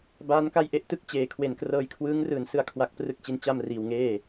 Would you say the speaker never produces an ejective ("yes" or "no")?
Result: yes